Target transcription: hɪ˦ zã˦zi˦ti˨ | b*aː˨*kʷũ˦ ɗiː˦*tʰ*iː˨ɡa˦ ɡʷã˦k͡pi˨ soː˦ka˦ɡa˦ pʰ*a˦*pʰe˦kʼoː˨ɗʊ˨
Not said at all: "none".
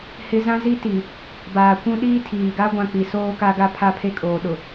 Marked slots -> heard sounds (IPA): aː˨, tʰ, a˦

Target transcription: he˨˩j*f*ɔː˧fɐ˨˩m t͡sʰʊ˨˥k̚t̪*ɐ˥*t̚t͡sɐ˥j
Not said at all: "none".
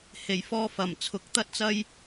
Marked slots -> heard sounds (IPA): f, ɐ˥

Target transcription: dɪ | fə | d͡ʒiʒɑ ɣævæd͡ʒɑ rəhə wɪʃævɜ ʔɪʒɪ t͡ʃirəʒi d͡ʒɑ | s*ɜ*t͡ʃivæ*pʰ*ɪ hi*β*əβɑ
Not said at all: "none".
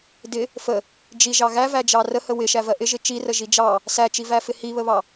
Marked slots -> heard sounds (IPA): æ, f, β

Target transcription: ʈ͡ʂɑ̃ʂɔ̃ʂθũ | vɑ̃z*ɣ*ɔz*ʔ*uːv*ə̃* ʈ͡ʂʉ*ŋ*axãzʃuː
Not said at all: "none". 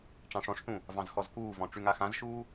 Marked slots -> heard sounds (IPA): x, k, ɔ̃, ŋ

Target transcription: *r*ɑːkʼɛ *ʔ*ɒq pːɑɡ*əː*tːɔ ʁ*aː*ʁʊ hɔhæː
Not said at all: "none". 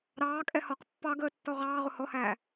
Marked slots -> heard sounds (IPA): ɾ, h, əː, ɑː

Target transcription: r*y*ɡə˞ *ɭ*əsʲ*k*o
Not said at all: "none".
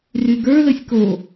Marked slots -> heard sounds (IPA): y, l, k

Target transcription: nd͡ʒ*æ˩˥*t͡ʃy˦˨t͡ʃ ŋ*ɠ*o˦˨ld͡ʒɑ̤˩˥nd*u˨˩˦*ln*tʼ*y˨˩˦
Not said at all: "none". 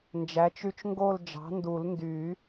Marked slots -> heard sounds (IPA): æ˩˥, ɡ, u˨˩˦, d

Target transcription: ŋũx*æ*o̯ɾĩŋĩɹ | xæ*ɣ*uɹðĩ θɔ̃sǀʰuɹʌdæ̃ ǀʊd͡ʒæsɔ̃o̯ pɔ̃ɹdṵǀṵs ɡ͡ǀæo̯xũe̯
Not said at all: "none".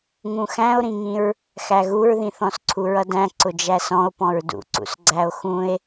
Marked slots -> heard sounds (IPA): æ̃, ɣ

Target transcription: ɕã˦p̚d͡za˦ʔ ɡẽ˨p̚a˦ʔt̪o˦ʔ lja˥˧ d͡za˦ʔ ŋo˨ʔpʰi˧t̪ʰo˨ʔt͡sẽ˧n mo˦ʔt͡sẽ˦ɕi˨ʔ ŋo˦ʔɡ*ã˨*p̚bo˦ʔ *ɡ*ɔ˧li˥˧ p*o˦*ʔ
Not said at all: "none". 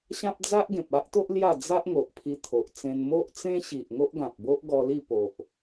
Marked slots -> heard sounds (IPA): ã˨, ɡ, o˨

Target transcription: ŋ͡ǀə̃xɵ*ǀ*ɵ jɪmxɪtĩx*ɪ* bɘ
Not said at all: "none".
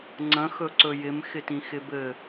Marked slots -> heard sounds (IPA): ǀ, ɪ

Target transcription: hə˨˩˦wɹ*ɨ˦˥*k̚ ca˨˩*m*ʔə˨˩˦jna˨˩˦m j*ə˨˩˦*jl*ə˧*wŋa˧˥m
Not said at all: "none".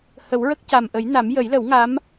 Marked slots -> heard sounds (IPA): ə˦˥, m, ə˨˩˦, ə˨˩˦

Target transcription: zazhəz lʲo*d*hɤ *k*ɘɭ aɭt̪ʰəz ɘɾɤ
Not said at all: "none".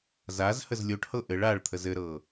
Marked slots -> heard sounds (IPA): ʈ, ʔ

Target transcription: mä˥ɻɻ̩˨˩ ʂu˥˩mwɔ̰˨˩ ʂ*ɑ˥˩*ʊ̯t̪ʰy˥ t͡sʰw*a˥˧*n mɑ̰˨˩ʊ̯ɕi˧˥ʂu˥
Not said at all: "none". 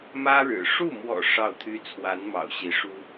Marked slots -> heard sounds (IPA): ɑ˥˩, a˧˥

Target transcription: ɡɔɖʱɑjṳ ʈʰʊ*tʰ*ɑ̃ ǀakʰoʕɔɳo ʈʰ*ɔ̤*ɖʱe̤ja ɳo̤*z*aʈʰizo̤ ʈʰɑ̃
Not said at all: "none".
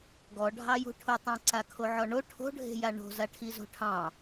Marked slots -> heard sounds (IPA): tˤ, o̤, z

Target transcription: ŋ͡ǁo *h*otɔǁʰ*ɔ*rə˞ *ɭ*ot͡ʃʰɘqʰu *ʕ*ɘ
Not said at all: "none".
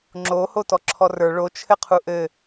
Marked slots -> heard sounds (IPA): h, ɔ, ɭ, ʔ

